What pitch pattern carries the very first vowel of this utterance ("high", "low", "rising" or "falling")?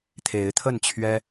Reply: rising